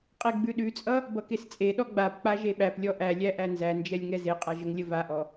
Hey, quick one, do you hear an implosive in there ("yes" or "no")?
yes